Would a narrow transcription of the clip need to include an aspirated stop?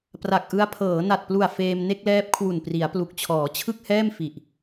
yes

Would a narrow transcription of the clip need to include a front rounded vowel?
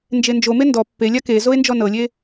no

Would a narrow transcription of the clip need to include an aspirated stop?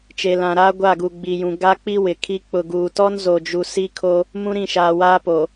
yes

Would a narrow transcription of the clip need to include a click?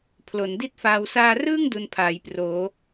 no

